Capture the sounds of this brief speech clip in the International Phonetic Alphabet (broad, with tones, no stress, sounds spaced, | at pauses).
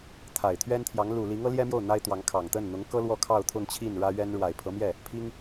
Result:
t̪ʰ a˨˩ ɪ̯ t̪ʰ ɥ ɛ˥ n t̪ʰ j ɑ˧˥ ŋ l u˨˩ l i˧˥ ŋ ɤ˧˥ l j ɛ˥ m j o˥˩ ʊ̯ n̪ a˥ ɪ̯ t̪ w ɑ˧˥ ŋ kʰ ɑ˨˩ ŋ t̪ ə˥˩ n n̪ ʊ˧˥ ŋ k ɤ˥ l w ɔ˥ kʰ ɑ˥˧ ʊ̯ t̪ʰ ʊ˥˧ ŋ t͡ɕʰ i˥˩ n ɻ ä˥ ɥ ɛ˥ n ɻ w a˨˩ ɪ̯ pʰ ɤ˧˥ m j ɛ˥˩ | pʰ i˥ ŋ